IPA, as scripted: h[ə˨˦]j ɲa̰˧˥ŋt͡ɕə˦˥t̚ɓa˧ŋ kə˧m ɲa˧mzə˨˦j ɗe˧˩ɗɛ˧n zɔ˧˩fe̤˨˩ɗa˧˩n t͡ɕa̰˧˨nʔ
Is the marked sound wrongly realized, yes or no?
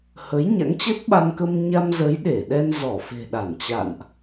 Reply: no